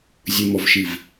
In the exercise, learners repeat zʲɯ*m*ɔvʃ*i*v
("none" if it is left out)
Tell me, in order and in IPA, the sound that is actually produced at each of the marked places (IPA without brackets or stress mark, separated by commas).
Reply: m, i